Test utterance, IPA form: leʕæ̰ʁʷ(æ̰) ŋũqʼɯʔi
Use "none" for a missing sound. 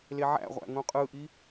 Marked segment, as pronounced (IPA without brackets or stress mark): æ̰